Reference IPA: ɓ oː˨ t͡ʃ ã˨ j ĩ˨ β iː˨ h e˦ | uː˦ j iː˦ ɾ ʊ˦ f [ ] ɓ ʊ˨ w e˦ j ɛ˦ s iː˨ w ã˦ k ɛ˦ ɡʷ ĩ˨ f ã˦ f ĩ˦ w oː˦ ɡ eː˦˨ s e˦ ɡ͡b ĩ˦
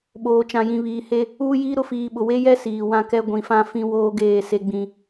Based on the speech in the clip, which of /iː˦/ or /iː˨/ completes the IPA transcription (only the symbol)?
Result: iː˨